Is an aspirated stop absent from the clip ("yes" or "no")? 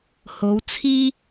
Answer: no